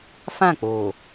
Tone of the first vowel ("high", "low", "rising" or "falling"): falling